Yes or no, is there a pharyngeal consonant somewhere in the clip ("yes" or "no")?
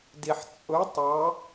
yes